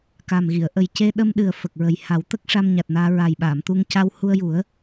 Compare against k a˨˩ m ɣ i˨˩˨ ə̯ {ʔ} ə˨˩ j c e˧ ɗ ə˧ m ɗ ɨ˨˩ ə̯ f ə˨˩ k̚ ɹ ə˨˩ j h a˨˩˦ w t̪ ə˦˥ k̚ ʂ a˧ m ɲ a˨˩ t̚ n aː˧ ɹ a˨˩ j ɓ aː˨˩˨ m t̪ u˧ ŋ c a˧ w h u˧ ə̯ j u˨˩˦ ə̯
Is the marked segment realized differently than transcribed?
no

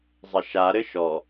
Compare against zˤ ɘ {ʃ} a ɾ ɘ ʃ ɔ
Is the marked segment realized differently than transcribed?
no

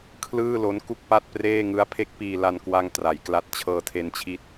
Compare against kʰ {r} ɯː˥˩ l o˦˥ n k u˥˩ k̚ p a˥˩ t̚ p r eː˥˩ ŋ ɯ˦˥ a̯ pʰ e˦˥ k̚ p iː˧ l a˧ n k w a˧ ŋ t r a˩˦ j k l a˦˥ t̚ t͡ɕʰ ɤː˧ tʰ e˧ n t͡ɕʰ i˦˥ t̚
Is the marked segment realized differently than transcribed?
yes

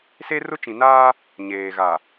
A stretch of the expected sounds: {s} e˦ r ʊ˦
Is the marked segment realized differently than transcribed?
no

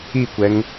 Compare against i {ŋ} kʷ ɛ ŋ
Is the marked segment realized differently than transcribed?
yes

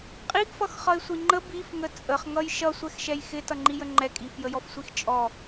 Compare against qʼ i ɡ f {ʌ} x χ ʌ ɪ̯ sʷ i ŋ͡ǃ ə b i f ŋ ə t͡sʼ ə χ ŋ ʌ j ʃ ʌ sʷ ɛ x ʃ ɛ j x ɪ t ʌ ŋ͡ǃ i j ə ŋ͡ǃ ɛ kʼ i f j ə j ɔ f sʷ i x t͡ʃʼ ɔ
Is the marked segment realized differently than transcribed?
no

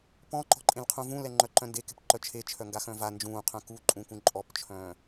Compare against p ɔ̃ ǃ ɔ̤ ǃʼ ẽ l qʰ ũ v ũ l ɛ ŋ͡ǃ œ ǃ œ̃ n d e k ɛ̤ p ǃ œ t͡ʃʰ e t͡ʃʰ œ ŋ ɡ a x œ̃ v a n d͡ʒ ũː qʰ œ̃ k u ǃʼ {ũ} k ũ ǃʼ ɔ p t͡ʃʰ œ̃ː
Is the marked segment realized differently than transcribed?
no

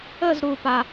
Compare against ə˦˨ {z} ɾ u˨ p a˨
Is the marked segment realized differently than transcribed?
no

